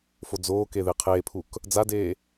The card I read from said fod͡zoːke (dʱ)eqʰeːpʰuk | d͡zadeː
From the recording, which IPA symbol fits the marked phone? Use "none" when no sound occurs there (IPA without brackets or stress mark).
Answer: ð